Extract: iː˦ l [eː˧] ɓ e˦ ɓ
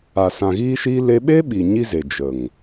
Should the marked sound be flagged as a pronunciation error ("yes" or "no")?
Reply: yes